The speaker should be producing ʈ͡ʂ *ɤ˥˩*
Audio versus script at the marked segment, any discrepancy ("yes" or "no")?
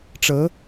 yes